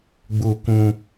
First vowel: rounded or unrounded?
rounded